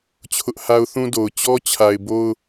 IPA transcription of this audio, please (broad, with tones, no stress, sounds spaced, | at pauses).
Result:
t͡ɕʰ ʊ˦ ʔ h a˦ ʊ̯ θ ũ˦ d o˨ ʊ̯ t͡ɕ ɔ˦ t͡ɕʰ a˨ ɪ̯ b o˦ ʊ̯